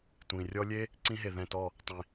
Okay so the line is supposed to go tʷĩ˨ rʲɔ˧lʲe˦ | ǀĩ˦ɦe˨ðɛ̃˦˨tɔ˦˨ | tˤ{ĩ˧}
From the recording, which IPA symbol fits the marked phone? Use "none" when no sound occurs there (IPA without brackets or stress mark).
ĩ˨